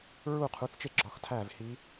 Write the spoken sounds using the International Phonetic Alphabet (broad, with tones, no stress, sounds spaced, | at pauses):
ɹ u˦˨ qʰ u˨˦ θ t͡ʃ e˦˨ ɡ͡ǁ ɒ˨˦ x tʰ æ˦˨ v h i˦˥